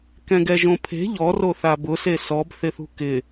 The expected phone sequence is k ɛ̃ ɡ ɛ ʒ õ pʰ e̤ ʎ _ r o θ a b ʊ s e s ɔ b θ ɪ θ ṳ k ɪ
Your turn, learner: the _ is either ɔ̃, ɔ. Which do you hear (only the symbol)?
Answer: ɔ